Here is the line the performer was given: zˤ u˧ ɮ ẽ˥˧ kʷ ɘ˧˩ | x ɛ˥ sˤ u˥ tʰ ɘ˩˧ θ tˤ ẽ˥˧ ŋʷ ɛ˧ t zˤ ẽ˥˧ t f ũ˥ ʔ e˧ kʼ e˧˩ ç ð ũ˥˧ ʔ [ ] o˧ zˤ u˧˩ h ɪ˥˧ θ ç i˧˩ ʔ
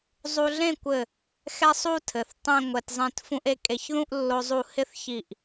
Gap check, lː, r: lː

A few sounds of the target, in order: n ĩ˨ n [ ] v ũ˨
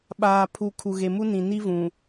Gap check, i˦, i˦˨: i˦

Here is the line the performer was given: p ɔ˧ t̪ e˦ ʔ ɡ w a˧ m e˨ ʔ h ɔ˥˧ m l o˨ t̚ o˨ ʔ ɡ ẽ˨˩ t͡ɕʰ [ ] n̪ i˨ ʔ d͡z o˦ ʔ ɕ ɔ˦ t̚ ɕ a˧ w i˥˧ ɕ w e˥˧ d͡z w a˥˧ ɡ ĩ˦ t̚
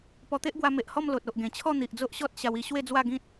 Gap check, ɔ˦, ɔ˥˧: ɔ˥˧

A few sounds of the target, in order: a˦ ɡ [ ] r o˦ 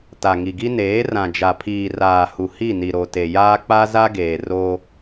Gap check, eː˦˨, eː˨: eː˨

